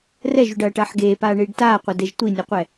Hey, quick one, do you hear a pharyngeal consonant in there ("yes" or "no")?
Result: yes